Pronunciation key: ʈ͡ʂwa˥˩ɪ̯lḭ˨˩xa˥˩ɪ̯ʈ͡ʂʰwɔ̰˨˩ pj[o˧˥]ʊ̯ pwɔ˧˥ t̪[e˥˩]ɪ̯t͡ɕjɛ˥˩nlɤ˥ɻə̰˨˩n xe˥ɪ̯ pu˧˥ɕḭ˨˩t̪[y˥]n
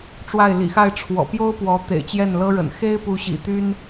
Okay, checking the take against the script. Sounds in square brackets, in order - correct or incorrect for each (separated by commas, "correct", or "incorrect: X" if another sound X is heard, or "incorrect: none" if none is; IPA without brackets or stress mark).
incorrect: o˥, incorrect: ḛ˨˩, correct